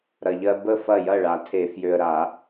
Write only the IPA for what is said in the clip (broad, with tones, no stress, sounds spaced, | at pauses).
ɾ ɐ˨ ʎ ɜ˦ b ə˥˩ f ɐ˥˩ j ɐ˥˩ ɭ a˨˩˦ tʰ e˨˩˦ f j ø˨ ə̯ ɾ a˨˩˦